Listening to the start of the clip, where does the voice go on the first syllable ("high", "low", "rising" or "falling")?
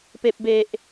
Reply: low